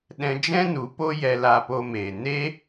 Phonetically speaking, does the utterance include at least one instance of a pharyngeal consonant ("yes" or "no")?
no